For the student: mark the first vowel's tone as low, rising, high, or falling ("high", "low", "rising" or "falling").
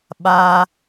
low